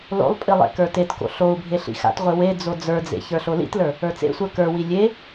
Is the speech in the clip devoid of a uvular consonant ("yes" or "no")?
no